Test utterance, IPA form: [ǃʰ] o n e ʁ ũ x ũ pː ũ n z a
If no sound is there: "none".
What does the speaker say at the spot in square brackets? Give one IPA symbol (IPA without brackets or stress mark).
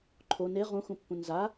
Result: ǃʰ